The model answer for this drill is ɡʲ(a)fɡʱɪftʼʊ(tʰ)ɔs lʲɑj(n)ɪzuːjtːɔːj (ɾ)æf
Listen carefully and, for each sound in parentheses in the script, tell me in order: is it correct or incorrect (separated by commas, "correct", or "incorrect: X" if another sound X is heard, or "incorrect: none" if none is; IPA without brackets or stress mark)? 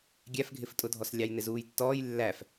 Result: incorrect: æ, incorrect: dʱ, correct, incorrect: lː